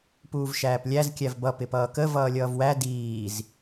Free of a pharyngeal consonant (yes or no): yes